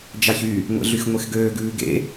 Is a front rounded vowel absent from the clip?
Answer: no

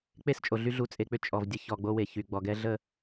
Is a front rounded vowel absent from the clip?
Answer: no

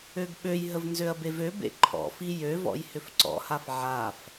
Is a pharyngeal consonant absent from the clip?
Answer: no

